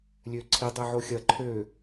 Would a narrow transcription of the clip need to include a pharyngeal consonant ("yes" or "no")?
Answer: yes